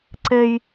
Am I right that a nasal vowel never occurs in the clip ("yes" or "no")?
yes